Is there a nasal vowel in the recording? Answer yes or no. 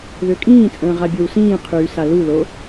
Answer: yes